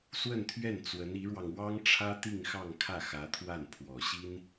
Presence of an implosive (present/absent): absent